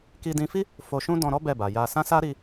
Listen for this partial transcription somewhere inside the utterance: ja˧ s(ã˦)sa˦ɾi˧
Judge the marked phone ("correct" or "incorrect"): correct